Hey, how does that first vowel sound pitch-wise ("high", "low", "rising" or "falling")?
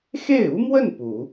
falling